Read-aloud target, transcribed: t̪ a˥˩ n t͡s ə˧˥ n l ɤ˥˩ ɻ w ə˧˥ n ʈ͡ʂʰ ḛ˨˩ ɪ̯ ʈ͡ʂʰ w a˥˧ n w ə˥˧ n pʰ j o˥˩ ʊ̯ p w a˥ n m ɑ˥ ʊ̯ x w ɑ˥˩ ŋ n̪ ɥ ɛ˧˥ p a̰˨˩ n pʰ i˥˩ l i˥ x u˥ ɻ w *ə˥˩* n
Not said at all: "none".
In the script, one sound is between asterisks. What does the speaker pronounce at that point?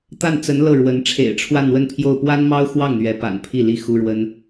ə˥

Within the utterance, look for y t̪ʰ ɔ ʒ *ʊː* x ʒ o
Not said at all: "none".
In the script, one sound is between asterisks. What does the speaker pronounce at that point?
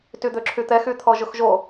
ʊ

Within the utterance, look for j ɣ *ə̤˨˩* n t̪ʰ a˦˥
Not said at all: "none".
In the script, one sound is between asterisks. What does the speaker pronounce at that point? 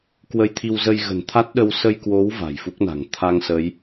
ə̤˨˩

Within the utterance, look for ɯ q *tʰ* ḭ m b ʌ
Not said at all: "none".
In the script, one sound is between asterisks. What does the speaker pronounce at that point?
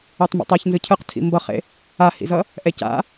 tʰ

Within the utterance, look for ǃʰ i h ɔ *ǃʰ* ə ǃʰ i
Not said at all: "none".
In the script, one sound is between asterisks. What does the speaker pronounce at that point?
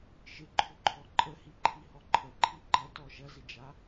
ǃʰ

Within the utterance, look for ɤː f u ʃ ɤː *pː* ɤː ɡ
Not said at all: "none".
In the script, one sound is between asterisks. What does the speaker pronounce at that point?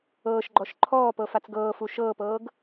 p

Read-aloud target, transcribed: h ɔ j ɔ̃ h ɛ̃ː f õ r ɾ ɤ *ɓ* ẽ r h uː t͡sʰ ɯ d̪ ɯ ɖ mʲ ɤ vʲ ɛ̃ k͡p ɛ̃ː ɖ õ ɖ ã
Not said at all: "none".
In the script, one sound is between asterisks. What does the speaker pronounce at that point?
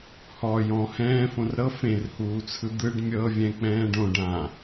f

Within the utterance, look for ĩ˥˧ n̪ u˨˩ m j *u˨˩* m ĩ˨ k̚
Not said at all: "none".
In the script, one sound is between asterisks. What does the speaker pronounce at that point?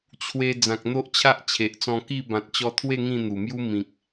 u˦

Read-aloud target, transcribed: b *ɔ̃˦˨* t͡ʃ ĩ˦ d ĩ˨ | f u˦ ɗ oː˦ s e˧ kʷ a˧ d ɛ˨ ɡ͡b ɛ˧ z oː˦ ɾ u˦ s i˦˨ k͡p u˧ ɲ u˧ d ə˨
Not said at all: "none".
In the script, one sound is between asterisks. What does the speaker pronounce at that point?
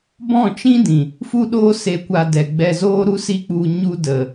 ɔ̃˦˨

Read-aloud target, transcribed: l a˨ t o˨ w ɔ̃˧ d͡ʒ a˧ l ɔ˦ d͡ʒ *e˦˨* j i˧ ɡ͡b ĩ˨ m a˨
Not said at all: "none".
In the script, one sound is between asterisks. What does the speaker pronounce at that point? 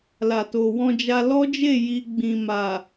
e˦˨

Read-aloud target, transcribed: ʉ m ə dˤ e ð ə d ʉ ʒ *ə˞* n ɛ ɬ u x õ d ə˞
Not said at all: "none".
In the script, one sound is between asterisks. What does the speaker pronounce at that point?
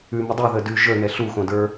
ə˞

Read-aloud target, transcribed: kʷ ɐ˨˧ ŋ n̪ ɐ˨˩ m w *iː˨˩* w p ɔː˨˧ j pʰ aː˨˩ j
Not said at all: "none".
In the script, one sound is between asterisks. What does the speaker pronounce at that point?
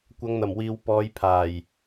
iː˨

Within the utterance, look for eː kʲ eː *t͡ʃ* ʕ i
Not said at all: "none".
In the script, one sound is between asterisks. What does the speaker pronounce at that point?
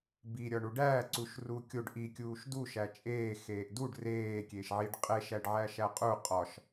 ʃ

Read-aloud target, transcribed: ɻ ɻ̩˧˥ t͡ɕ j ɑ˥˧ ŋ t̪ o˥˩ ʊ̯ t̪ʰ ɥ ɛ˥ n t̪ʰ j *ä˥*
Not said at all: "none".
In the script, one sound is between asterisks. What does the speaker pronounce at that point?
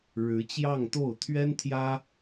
ä˥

